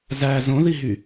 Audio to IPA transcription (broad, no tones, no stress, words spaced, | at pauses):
zæ zõðiɦy